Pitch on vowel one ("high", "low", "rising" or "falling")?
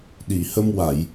low